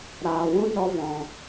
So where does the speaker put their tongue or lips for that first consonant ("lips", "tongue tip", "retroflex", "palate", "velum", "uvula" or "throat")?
tongue tip